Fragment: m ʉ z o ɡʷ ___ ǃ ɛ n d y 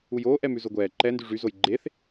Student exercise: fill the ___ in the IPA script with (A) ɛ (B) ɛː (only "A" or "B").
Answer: B